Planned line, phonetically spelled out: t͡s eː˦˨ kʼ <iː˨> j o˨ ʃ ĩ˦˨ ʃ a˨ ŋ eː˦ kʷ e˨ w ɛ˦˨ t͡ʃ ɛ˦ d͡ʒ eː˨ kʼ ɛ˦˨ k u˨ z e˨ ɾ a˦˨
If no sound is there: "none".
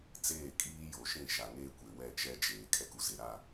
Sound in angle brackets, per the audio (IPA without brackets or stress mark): iː˦